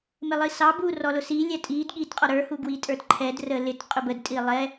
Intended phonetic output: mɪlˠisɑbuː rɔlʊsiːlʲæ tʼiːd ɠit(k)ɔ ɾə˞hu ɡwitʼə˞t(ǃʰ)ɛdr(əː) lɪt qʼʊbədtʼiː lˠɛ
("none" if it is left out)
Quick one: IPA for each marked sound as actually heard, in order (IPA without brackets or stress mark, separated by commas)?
qʼ, ǃʰ, əː